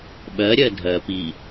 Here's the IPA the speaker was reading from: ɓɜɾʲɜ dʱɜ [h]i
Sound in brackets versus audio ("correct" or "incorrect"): incorrect